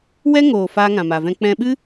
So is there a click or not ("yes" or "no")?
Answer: no